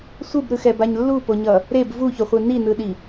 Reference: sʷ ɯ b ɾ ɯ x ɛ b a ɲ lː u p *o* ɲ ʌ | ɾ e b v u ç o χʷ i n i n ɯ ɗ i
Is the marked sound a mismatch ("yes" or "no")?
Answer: no